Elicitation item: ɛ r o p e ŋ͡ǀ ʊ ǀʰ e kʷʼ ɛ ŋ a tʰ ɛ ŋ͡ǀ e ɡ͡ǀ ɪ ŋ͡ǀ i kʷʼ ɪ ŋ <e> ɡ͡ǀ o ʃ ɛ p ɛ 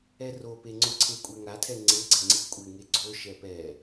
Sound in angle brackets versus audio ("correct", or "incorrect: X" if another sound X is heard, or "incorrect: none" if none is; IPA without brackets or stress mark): correct